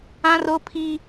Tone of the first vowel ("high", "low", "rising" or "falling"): high